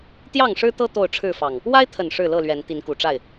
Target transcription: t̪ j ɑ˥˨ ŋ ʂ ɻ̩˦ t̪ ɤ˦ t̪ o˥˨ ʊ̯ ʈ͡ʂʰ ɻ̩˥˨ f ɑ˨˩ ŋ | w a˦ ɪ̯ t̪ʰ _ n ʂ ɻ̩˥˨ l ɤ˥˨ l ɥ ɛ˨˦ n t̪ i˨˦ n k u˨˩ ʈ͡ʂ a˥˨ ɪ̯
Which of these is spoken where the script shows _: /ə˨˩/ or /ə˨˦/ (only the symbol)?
ə˨˩